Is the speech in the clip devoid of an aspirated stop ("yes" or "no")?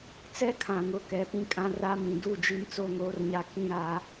no